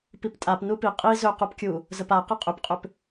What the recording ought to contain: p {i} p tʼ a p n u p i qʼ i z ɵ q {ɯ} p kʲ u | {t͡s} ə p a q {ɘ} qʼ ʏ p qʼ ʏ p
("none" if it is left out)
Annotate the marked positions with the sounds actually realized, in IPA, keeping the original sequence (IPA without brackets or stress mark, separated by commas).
i, u, z, ɘ